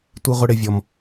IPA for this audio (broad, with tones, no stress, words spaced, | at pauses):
tʷi˦ʁʷɪ˦ ɽɪ˦vʲɔ˦m